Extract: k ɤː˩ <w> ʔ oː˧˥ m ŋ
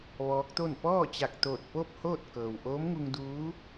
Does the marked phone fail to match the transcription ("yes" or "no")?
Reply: no